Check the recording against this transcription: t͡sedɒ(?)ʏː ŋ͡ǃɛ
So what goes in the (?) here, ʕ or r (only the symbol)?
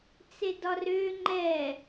r